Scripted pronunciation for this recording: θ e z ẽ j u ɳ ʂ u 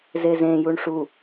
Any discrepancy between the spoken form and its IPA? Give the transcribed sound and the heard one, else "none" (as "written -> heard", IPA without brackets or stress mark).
θ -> z